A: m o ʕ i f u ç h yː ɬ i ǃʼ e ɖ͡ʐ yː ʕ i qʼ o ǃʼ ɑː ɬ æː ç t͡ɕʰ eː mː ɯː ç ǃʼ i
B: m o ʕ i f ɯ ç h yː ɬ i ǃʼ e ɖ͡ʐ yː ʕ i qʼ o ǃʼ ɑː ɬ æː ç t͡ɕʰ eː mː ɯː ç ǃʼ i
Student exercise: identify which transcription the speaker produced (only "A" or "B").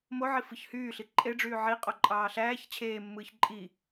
B